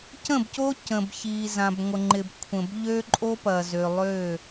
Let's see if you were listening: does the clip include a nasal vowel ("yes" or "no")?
yes